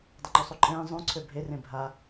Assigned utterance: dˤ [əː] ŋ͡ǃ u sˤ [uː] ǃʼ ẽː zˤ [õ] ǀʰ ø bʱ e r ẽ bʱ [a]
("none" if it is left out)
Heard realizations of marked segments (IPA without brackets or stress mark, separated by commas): ə, u, ũ, a